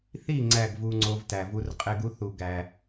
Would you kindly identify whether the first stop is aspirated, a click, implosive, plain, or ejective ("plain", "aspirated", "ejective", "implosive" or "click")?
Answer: click